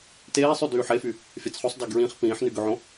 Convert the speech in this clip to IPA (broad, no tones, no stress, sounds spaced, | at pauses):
t eː sˤ y d yː ħ e f y | fʲ a t͡s χ o sˤ d a ɡ ɹ ĩ χ p ĩː ħ n y ɡ ø ʕ õ